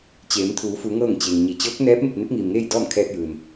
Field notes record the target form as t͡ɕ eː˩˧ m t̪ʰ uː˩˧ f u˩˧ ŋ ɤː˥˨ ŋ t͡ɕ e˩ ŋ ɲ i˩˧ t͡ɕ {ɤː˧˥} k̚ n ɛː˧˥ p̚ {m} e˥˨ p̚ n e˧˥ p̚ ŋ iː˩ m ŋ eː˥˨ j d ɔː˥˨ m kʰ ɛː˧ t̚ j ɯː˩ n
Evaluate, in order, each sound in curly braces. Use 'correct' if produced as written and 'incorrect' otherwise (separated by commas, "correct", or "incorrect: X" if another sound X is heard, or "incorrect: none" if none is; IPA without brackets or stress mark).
correct, correct